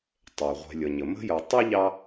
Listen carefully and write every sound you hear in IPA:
tˤ ɛ˩ ʁʷ ɛ̤˨ lʲ ʌ˩ ɲ ə˩ m ə̤˥ j ʌ˨ tˤ ə˥ ʎ ɑ˦

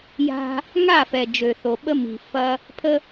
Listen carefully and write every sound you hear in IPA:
j a̤˦ | ŋ a˦˨ f ɛ˨ d͡ʒ ø˨ θ o˨ ɓ ə˦ m i̤˨ f ɐ˦ | pʰ ə˦

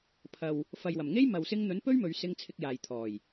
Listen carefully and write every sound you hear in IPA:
pʰ ɐ˨ w | f ɐ˨ j w ɐ˨˩ m ŋ e˥ j m ɐ˨ w s ɪ˧ ŋ n̪ ɵ˨˥ n p ɵ˥ ɥ m ɵ˨˧ ɥ s ɪ˧ ŋ t͡sʰ ɪ˧ k̚ j aː˨ j t̪ʰ ɔː˨˩ j

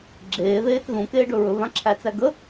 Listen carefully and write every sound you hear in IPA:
ɡ͡ǁ eː ð eː t ð ũ k eː ɖ ɵ ɹ ɵ v ã ǁʰ æ t͡s æ ɡ ə

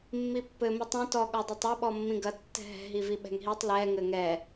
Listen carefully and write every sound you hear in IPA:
mː i pː ɘ m i tˤ ɛ̃ t ɔ ɠ ɔ dˤ ɛ tˤ ɔ ɓ ɔ mː ĩ ɡ ɐ tː ɛ̤ ɦ ɛ̤ ɦ i v i ɓ ɛ̤ ŋ ɦ i tˤ l ɛ ŋ ɘ ŋ ɛ

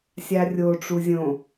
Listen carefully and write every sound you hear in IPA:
sʲ a rʲ o ʈ͡ʂ u zʲ õ

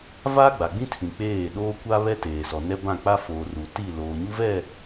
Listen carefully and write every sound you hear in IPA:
v aː˦ ɡ͡b a˨ ɡ͡b ĩ˦ tʰ ĩ˨ k͡p eː˦˨ ɗ oː˦ kʷ a˦ β ɛ˦ t eː˨ s ɔ˨ n ɛ˦ b ã˦˨ k͡p a˦ f oː˨ r u˨ t i˦˨ l oː˨ ɲ u˦ v ɛ˦˨

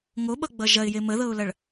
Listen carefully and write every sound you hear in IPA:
ŋ o ɓ ʌ ɡ͡b ʌ ʒ ɐ ɪ̯ j e m ə ð ɤ ʊ̯ l ɐ ɭ

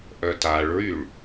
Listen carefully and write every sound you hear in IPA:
ʔ œ t a ɭ ɹ y ɭ

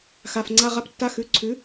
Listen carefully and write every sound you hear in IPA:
x a˩˧˩ f ŋ͡ǀ a˧˥˧ ʁ a˧˥˧ p tː a˧˥˧ x ʉ˩˧˩ ǀʰ ʉ˩˥

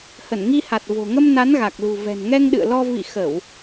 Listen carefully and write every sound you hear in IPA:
h ə˧˩ n ŋ i˧ h a˨˩ t̚ v o̤˨˩ ŋ ə˧ m n a˨˦ n ɣ a˨˩ k̚ l ṳ˨˩ v ɛ̤˨˩ n ŋ ɛ˧ ŋ ɗ ɨ̰˧˨ ə̯ l ɔ˧ v ḭ˧˨ x ə˧˩˨ w

